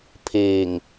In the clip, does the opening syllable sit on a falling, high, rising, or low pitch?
low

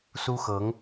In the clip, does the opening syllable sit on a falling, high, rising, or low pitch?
high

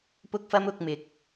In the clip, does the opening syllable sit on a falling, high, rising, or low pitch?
high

